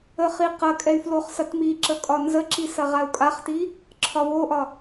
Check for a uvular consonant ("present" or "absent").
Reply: present